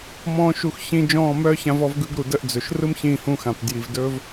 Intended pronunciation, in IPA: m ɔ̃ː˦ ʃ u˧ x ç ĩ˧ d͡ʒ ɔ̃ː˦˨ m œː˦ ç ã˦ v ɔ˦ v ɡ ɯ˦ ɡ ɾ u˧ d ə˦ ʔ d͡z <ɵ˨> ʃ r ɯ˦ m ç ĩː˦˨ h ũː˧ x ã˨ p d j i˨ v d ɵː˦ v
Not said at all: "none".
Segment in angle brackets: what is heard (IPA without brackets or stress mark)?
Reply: ɵ˨